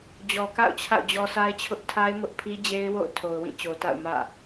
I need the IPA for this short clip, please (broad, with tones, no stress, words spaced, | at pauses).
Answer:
d͡ʑɔ˨ka̰˦˨ʊ̯ t͡ɕʰa̰˦˨ʊ̯d͡ʑɔ˦sa˦ɪ̯t͡ɕʰʊ˦ʔ tʰa˦ɪ̯mʊ˦ʔpʰi˦d͡ʑe˦ɪ̯ wo̰˦˨ʊ̯ tʰo˨ʊ̯wĩ˦˨t͡ɕo˨ta̰˦˨ʊ̯ mä̰˦˨